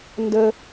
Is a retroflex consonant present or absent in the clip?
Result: absent